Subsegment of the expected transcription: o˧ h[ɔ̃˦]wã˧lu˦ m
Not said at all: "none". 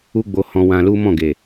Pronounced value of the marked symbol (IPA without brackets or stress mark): ɔ̃˧